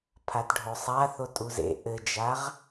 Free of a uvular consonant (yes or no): no